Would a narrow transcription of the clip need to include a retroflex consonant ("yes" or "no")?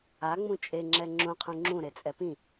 no